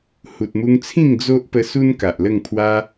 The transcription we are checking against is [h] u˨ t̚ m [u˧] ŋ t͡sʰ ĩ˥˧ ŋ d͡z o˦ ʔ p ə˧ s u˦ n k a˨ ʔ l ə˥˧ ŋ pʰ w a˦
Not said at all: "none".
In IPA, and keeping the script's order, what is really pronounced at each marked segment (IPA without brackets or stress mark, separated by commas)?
h, u˧